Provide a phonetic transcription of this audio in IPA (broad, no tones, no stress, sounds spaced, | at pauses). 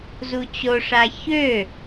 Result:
z u t͡ɕ o ʂ a ç ø